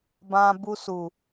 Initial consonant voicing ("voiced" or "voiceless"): voiced